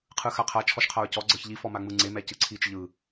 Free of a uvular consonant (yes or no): no